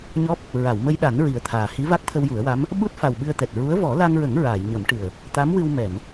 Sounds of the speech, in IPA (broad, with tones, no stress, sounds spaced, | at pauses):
ɲ ɔ˦˥ p̚ | ɹ a˨˩˨ w m ə˧ j ɗ a˨˩˦ n ɹ i˨˩ ə̯ t̪ʰ aː˨˩ h i˧˥ v a˦˥ k̚ t̪ʰ ə˧ w j u˨˩˦ ə̯ w a˧˥ m | ɓ u˦˥ t̚ f a˨˩ w ɓ ɨ˧ ə̯ t̪ ɛ˨˩ t̚ ɹ u˧˥ ə̯ v ɔ˨˩˦ l a˧ ŋ ɹ ə˨˩˦ ŋ ɹ aː˨˩˨ j ɲ ə˨˩˦ m ʈ ɨ˨˩ ə̯ | t̪ a˧˥ m w ɨ˧ w m ɛ˨˩˨ n